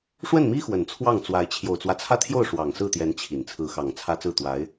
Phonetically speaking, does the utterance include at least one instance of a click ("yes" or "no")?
no